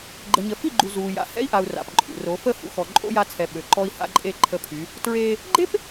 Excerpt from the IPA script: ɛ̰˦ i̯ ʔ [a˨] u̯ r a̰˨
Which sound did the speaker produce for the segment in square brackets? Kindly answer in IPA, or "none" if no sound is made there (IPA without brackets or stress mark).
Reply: a˨